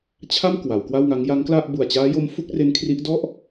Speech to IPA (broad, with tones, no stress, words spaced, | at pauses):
t͡ɕʰa˥˩m kwa˩˦wkwa˥˩wŋa˦˥ŋ ja˦˥ŋkla˥˩ʔ bu˨˩a̯t͡ɕaː˦˥jo˦˥m fu˦˥k̚re˦˥nkʰri˦˥ʔ dɔ˥˩ʔ